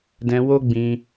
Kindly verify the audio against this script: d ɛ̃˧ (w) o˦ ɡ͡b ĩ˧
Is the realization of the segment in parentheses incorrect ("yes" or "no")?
no